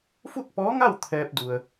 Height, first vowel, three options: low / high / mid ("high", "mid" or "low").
high